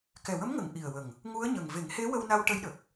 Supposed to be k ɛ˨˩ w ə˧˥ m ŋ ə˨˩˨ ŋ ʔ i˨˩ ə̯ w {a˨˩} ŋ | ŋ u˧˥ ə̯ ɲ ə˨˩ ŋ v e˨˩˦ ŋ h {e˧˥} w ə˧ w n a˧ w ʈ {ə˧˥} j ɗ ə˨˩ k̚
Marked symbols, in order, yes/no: no, yes, yes

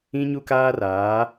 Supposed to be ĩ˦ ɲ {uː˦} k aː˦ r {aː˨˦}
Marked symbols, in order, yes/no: no, yes

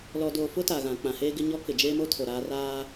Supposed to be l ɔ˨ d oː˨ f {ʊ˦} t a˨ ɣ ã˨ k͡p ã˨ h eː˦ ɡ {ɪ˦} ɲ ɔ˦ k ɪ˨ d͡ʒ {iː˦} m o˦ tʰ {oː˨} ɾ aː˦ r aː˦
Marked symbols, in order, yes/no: yes, yes, no, no

